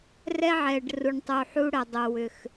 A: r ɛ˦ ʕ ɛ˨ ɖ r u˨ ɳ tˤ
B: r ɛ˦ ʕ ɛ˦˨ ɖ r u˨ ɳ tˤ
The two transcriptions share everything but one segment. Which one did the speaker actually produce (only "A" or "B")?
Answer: A